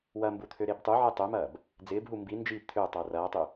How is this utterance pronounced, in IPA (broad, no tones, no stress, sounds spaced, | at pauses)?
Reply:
w ɐ m b u t̪ʰ ø ɾ e b tˤ u ʕ e tˤ ø m ɐː b | d͡z ɪː b ɦ u m b i n d͡ʒ i p t̪ʰ ʏː tˤ oː r ɐː tˤ y